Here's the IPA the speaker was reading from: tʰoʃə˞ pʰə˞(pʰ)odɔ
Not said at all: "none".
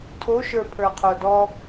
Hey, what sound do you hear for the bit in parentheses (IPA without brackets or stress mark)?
qʰ